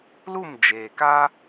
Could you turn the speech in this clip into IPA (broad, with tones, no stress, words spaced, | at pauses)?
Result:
lu˦˨m d͡ʒeː˨ka˦